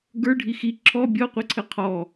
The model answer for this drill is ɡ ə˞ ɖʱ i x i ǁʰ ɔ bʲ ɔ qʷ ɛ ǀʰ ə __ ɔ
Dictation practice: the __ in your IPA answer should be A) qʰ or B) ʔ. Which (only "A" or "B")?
A